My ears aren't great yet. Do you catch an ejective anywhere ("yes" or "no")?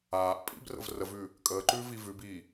yes